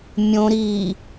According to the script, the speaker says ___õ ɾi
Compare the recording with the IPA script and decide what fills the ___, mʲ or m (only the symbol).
mʲ